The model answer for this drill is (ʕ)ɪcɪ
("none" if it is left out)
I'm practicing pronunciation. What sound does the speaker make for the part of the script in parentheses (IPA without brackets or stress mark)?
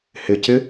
h